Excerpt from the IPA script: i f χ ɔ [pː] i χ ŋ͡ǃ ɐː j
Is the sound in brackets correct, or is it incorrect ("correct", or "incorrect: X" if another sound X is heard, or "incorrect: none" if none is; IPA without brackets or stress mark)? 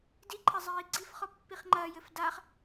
correct